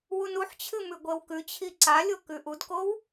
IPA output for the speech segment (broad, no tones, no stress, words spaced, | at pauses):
wunuħt͡ɕʰɨ mʉɡʷewkʉt͡ɕʰi ǀalʲo kʉʔudkow